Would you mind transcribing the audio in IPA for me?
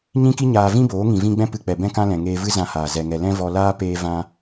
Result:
ɲĩ˦ki˦ɲaː˧ vĩ˦boː˨˦ ŋĩ˨vĩ˧ɡ͡bɛ̃˦ pɨ˧k͡pɛ˨ bɛ̃˦kã˦lɛ̃˨ ŋeː˧vɨ˦zã˧haː˨ zɛ˧ŋɛ˧ lɛ̃˦vɔ˧laː˦ peː˦vã˦

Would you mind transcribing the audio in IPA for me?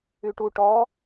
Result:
yʈu ʈɔ

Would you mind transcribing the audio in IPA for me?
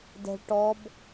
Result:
dɛ̤ɭ ʈɔb

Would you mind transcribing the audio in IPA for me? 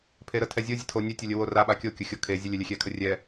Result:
pʰeɾətʰɛ zʲozʲətʰo nʲɛtʲʊlʲəwo raɓa kʲokʲʊ xʲokʰe zʲəlʲɛlʲɛxʲɛ kʰərʲɛ

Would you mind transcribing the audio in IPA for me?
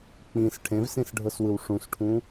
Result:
k͡pĩs ʈʰẽvsĩsɖʱɤswɯw ʂũsʈʰũ

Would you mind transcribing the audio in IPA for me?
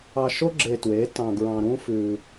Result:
ɑ˧ʃo˦ ɡ͡ǁe˧twe˨˦tɑ̃˧ ɡɹɑ̃˧ɾũ˦fʉ˧

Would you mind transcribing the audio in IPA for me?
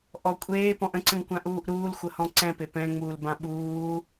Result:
ʔɔ kʷʼeːpɔ̃ʔ ə̃ǀə̃ŋkʷãʔuːʔ ɾuːlxʷəhɔ̃ ǀɛ̃pe pɛ̃ŋ͡muːlbã ɓuː

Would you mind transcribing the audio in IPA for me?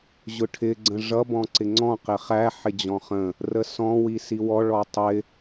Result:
ʑʊʈʰɪ ɡ͡ǀə̃ʐʌ bɔ̃ǀɪŋ͡ǀɔ̃ qɪχæ ħɪd͡ʑɔ̃χə̃ | rəsɔ̃ wisiwɔ ɭɔtˤɪ

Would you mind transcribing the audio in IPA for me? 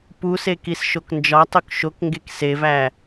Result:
puse kisʃoknd͡ʒɒtˤuk ʃokŋɡek sevæ

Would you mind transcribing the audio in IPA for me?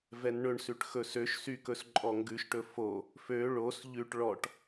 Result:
vɛnɳɵɳsʉʈ xɵsøʃsykɵs ǃʼɔŋɡʉʃʈɵ fo | fø ɭos ʎʉʈ ɭɔʈ

